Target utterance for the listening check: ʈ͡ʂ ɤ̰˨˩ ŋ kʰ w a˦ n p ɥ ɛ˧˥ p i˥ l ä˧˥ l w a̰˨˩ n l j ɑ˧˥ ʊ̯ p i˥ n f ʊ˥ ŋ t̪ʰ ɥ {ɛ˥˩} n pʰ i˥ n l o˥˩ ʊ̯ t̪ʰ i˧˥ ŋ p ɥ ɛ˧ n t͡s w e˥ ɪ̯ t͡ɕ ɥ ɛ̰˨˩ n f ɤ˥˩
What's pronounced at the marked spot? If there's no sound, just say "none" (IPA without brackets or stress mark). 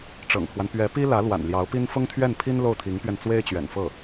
ɛ˥˩